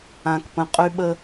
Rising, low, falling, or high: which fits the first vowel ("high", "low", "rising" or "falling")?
low